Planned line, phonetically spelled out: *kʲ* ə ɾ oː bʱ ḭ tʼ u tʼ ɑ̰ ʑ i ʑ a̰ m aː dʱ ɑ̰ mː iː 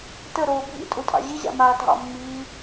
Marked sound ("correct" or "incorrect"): incorrect